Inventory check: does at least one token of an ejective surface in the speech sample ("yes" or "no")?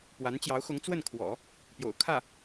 no